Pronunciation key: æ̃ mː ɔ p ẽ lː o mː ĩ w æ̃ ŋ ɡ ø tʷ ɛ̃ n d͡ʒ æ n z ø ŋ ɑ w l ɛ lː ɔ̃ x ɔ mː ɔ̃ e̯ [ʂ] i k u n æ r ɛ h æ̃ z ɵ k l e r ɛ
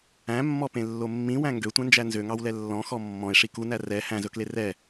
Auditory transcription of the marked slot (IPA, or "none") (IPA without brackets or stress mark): ʂ